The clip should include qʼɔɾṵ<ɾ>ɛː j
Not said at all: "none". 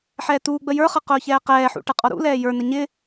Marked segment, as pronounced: l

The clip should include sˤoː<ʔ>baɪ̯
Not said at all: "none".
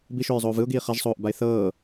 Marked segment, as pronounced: ʔ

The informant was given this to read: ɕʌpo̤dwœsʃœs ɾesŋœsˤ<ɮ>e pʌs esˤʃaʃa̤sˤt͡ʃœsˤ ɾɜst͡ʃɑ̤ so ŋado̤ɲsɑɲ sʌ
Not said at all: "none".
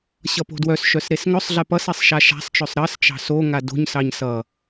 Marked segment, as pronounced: ɮ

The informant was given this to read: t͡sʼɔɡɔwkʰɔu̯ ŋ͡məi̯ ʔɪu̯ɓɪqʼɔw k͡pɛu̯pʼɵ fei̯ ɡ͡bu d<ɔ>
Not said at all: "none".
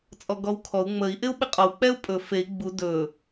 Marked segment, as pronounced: ɵ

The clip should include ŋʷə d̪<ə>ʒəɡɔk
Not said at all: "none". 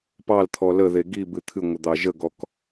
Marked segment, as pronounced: ɑ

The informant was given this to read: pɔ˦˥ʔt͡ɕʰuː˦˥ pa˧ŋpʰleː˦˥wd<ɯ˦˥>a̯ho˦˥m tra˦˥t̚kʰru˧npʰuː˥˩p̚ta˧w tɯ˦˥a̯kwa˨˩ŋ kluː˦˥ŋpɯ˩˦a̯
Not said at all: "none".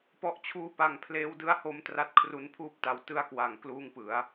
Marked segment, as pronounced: ɯ˦˥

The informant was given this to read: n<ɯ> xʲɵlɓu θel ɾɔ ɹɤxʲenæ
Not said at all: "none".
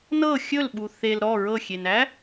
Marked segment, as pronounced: ɤ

